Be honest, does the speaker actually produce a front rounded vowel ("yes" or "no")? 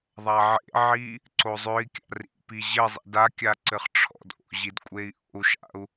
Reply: yes